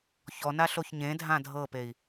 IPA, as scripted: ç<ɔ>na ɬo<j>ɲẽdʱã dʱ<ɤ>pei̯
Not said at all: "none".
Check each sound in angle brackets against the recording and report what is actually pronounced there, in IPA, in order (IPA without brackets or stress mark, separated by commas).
ɔ, ç, ɤ